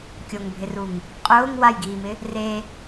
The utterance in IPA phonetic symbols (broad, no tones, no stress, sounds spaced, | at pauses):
kʲ o ŋ bʱ ɪ r u ŋ | qʼ ʊː ŋ w a j ɡ iː m ɪ | r e